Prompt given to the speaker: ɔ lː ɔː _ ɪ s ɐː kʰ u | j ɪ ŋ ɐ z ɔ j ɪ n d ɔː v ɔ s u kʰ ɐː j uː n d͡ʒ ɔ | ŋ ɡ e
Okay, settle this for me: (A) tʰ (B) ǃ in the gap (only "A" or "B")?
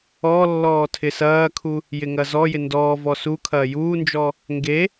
A